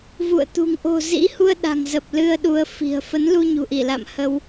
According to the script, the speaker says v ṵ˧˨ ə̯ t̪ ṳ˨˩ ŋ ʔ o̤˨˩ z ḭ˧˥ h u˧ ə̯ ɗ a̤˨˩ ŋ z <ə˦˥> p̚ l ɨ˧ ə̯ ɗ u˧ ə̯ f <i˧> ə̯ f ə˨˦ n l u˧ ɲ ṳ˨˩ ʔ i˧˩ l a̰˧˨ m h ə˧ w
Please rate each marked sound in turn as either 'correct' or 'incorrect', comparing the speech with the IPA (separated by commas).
incorrect, incorrect